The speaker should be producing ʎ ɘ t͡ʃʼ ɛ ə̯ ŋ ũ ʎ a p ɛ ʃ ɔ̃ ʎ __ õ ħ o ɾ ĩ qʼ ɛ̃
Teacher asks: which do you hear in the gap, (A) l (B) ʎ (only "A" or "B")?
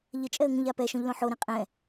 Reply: A